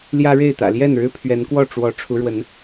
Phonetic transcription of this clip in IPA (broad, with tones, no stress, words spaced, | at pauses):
ljä˦ɻe˥˨ɪ̯ t̪ä̰˨˩ljɛ˥˨n ɻɻ̩˦pʰɥɛ˨˦nkwɔ˥˨ ʈ͡ʂwɔ˨˦ ʈ͡ʂʰu˨˦ɻwə˨˦n